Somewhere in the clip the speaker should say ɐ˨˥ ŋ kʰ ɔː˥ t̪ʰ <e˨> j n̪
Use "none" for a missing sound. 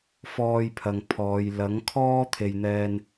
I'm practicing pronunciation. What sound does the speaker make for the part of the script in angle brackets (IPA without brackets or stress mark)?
e˨